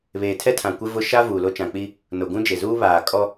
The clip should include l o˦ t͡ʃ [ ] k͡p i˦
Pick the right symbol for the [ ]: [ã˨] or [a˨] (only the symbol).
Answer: ã˨